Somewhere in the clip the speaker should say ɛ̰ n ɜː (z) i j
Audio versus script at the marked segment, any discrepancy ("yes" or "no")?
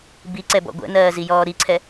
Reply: no